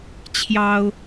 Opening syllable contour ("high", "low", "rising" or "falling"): high